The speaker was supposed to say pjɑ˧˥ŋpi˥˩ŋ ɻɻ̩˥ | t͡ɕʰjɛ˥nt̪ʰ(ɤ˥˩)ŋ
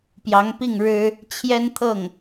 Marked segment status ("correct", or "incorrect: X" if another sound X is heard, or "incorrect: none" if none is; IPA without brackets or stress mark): correct